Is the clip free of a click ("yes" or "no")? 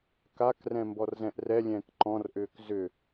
no